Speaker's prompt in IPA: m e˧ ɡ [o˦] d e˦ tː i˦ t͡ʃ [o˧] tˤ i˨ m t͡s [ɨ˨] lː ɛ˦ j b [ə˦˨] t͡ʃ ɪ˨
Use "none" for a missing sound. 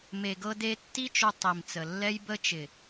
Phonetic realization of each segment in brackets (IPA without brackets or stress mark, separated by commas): ɤ˦, o˧, ə˨, ə˦